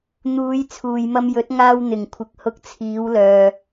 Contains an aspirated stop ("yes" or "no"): yes